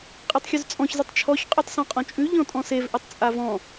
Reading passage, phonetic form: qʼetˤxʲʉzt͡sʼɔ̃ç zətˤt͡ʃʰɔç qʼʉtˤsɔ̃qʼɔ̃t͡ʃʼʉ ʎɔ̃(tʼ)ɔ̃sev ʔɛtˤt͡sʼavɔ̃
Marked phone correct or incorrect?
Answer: correct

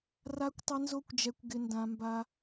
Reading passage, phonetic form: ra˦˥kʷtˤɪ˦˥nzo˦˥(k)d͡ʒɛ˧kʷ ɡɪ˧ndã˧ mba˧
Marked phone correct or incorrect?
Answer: incorrect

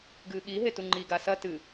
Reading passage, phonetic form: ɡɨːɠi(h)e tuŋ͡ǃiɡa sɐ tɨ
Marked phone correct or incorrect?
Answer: incorrect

